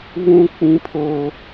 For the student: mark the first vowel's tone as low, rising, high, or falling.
high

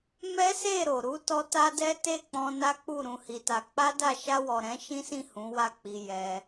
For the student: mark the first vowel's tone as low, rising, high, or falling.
high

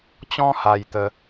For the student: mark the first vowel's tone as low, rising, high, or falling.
high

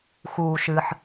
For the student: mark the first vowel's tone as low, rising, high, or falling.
low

